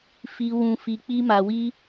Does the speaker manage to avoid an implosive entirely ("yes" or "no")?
yes